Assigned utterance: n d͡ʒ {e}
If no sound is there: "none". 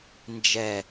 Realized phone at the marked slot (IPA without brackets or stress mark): ɛ